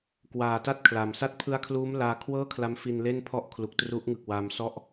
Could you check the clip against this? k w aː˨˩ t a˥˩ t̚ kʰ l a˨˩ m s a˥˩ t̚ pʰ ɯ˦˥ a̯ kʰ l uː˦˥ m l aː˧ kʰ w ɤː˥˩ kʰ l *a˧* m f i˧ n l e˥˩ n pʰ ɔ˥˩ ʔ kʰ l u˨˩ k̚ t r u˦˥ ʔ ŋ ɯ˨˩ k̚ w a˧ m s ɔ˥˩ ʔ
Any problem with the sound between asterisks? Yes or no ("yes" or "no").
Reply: yes